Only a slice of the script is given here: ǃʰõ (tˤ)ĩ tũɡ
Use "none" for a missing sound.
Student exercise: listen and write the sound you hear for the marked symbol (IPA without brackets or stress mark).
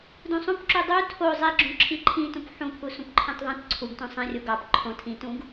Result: tʰ